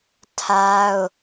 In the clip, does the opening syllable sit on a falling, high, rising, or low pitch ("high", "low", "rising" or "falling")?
high